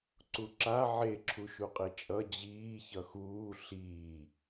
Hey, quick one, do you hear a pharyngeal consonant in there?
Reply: yes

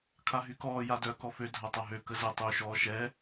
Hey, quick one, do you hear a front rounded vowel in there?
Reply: yes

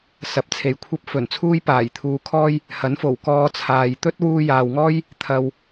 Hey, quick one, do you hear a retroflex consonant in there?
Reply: no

